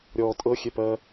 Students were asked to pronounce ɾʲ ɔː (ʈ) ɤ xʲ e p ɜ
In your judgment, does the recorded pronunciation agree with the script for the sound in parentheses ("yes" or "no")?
no